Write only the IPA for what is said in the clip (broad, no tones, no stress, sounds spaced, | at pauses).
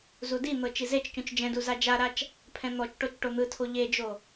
z u d i n̪ ɤ t͡ʃ i z e t͡ʃ c ũ t͡ʃ d͡ʒ ɛ̃ d u z a d͡ʒ a ɾ a t͡ʃ | pʰ ɛ̃ n̪ ɔ t͡ʃ ʈ o t͡ʃ ʈ o n̪ ɯ tʰ o ʎ e d͡ʒ o